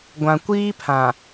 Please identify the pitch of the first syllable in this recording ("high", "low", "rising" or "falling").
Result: low